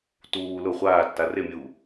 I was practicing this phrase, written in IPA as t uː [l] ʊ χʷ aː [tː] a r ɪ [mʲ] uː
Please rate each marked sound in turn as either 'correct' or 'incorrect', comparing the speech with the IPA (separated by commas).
correct, correct, correct